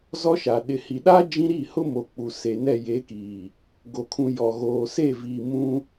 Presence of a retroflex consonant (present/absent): absent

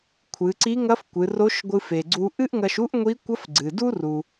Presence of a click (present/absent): present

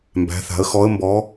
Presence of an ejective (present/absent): absent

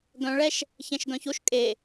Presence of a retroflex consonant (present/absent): present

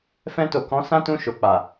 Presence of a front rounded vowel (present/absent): absent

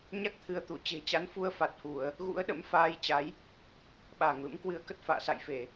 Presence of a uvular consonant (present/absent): absent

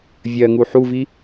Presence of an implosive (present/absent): absent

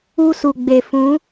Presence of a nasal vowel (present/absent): present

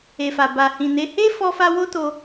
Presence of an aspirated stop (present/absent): absent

